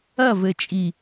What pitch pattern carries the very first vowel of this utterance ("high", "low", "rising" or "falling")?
falling